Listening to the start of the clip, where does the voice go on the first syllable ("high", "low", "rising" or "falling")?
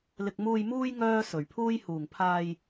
low